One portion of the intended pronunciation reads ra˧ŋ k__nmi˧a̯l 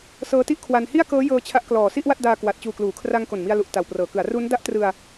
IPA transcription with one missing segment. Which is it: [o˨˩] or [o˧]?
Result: o˨˩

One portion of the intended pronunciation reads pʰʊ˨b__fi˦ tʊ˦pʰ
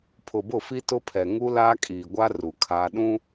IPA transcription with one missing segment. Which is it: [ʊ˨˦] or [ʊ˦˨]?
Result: ʊ˦˨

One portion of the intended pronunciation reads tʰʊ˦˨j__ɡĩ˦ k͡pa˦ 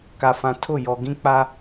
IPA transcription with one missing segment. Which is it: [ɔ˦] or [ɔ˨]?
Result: ɔ˨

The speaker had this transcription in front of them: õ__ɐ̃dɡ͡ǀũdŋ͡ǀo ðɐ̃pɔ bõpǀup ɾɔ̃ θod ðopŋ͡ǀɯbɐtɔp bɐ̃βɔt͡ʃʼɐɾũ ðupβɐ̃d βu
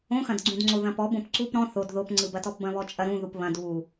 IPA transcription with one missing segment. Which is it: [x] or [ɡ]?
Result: x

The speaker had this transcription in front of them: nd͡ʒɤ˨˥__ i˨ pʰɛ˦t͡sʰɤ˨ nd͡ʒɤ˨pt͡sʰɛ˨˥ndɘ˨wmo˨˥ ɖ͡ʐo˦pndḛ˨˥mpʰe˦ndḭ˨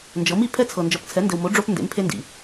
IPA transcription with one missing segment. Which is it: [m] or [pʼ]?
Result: m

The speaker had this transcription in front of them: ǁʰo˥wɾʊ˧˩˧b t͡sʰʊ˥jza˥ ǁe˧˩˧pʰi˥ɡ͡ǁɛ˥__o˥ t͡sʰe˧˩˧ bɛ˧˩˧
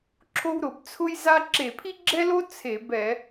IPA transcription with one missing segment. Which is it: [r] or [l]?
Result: l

